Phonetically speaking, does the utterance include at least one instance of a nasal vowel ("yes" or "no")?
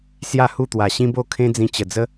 yes